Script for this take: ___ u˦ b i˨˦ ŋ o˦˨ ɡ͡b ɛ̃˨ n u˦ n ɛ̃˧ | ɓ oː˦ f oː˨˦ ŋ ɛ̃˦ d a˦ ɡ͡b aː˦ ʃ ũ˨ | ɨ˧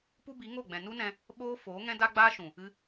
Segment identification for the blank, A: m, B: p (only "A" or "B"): B